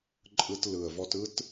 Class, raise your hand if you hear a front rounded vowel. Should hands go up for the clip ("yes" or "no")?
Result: no